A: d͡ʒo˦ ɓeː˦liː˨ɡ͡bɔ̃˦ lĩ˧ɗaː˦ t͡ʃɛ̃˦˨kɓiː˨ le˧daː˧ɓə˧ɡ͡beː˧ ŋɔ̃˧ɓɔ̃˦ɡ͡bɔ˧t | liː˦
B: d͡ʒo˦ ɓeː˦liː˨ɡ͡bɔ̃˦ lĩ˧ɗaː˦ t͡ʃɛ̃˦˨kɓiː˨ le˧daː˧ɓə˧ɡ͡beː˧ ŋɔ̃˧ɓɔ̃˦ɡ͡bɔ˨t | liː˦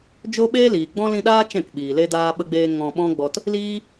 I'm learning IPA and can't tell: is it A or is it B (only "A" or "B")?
A